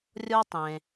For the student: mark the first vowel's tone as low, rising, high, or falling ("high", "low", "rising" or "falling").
high